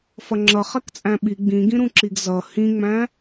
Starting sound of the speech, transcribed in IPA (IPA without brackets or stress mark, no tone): f